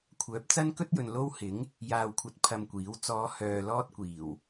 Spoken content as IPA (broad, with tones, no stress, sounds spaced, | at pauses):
kʷʰ œː˨˥ p̚ t͡s ɐ˥ n k ɵ˥ t̚ j ɵ˨ n l o˥ w h ɪ˨˥ ŋ | j aː˧ w kʷʰ ɐ˧ t̚ pʰ ɐ˧ m kʷ iː˨˥ w t͡s ɔː˨˧ h œː˨ l ɔː˥ t̚ kʷ iː˨˩ w